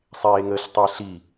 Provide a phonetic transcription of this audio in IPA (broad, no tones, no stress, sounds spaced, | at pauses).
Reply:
sˤ eː ŋ əː ɬ tˤ e ɬ i